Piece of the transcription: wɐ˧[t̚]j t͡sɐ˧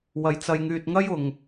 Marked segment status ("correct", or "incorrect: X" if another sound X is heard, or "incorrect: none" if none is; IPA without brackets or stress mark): incorrect: none